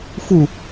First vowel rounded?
yes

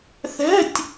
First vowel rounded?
no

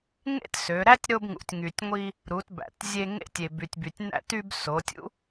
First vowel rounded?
no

